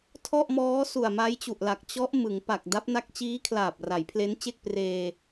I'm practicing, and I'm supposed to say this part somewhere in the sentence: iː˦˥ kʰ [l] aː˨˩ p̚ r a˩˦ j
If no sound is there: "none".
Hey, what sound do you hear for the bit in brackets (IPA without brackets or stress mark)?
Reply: l